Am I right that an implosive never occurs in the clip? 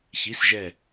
yes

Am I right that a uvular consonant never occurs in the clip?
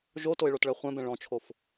no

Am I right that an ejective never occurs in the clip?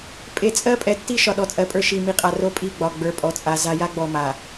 no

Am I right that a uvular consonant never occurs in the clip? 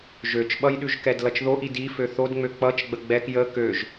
yes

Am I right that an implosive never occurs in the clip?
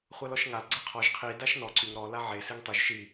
yes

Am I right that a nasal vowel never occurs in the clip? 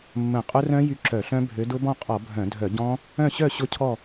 no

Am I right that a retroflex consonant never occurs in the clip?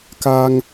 yes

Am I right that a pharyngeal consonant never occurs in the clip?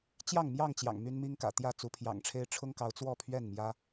yes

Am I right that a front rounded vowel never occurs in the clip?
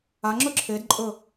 yes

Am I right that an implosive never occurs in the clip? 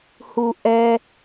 yes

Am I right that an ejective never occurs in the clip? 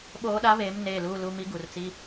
yes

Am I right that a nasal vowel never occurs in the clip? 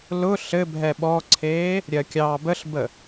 yes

